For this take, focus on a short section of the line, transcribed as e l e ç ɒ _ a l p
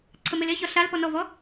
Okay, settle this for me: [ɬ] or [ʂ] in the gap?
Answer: ɬ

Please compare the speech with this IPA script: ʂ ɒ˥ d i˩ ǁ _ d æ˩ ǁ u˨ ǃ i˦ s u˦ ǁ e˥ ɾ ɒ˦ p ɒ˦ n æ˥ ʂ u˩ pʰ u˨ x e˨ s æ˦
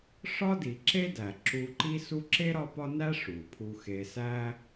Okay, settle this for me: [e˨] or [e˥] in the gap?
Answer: e˥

